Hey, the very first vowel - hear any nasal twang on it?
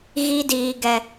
no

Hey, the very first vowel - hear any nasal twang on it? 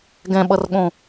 yes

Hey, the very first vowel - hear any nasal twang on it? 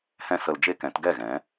yes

